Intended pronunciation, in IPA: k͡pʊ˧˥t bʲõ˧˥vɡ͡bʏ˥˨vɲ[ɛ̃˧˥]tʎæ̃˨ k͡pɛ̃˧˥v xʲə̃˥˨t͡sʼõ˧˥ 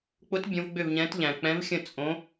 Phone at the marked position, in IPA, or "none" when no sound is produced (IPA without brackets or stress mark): ɛ̃˧˥